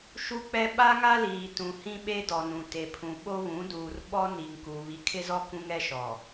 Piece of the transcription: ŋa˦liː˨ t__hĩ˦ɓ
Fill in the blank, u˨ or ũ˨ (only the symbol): ũ˨